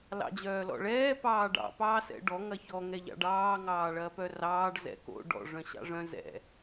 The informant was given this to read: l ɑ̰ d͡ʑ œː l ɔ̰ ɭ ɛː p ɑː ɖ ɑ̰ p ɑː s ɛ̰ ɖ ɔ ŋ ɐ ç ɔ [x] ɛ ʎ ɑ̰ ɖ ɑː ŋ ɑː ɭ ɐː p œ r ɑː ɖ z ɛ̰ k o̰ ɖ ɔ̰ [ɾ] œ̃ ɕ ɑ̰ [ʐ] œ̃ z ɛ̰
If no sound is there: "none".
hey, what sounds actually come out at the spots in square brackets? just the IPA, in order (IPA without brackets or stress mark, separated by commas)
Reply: ŋ, ʐ, ʐ